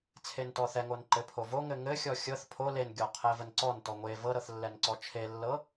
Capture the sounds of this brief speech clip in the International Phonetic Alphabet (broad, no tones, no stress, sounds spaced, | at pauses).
t͡sʰ e n t ɔ θ ɛ ŋ o n ǃ ɘ pʰ o v o ŋ ɘ ŋ ɘ xʲ ɔ xʲ ɤ θ pʰ o l e n ɡʲ ɔ qʰ ɛ v ə n ǀ ɔ n t ɔ ŋʷ e v ɤ ɾ ɤ θ lː ɛ n ǀ ɔ t͡ʃʰ e lː ɤ